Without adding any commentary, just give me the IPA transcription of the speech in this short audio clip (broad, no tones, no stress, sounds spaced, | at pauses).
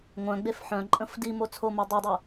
ŋʷ œ̃ ɡ͡b e f ħ œ̃ ǃʼ ə̃ f d i m o t͡sʰ o m o dˤ i dˤ u